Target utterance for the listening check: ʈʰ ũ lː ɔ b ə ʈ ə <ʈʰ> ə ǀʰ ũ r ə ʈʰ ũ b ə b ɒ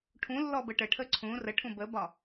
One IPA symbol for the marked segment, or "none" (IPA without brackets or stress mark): ʈʰ